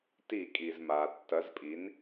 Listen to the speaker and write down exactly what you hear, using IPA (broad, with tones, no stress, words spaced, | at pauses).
ti˧˩˧kʼi˩zma˩ tːɐ˩˥zpʼi˩˥n